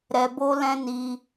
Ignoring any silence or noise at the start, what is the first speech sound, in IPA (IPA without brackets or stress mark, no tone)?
ɾ